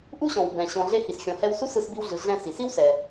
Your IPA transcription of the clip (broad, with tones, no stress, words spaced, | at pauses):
ʔu˥ɕɔ̃˩w bɛ̃˩ ɕɔ̃˩ ɮe˧ hi˩sxʲɔ̃˩hɛ˧w su˥sɯ˧sbi˧wɮɯ˩ ɮɛ̃˧ si˩si˥wsɛ˩